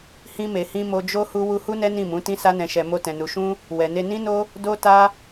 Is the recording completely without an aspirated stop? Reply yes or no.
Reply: yes